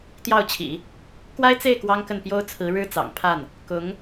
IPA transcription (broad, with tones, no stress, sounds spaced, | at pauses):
t̪ j ɑ˥˩ ʊ̯ t͡ɕʰ ḭ˨˩˦ | k w a˥ ɪ̯ t͡s e˥˩ ɪ̯ k w ɑ˥ ŋ k ə˥˩ n p j o˥ ʊ̯ t͡sʰ ɹ̩˧˥ ɻ ɻ̩˥ t͡s ɑ̰˨˩ ŋ pʰ a˥˩ n | k ʊ˧˥ ŋ